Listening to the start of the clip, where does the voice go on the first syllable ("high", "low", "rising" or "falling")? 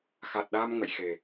low